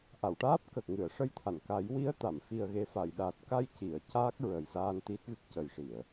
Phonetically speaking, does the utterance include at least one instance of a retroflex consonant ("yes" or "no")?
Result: yes